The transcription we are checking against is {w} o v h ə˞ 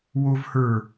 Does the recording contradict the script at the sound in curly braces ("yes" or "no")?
no